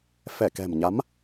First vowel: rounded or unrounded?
unrounded